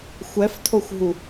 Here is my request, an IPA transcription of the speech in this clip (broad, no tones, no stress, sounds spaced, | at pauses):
xʷ ɛ f tʰ o xʷ ɦ u